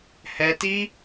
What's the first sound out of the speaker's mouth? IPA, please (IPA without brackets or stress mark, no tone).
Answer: h